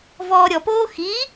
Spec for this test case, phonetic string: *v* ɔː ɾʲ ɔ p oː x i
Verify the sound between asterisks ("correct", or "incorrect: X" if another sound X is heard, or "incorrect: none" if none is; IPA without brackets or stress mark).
correct